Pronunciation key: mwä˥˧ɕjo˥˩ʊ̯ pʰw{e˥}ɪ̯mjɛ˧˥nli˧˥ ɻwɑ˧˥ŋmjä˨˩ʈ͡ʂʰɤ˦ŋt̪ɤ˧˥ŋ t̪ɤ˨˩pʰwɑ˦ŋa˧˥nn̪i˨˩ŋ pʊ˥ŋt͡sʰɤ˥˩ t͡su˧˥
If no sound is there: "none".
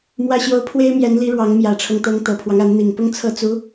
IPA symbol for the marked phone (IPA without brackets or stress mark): e˥